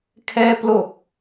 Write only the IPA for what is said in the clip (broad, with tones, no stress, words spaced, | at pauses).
kʰɛː˧plo˨˩k̚